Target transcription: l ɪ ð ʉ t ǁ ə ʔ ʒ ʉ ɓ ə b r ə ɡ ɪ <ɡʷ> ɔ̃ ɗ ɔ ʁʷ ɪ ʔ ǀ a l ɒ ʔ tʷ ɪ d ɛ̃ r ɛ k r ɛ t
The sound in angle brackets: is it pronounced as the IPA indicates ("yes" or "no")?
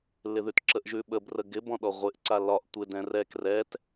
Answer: no